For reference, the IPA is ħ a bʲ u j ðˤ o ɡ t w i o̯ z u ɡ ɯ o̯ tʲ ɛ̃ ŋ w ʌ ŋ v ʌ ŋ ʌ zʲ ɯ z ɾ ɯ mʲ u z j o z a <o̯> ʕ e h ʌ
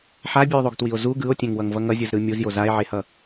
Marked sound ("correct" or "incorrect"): incorrect